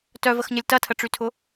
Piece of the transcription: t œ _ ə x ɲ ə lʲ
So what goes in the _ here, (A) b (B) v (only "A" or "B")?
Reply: B